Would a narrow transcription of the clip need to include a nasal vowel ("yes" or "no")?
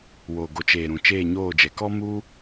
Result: yes